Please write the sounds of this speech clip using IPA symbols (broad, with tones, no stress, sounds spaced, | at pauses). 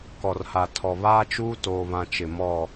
k ɔ˨ r h a˨ tʰ ɔ˨ β aː˦ t͡ʃ uː˦ t oː˨ β ã˨ t͡ʃ ɪ˨ m ɔ˦˨